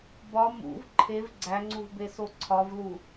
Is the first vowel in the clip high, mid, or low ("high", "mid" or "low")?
low